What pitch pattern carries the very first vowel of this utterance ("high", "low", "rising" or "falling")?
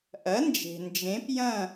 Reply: rising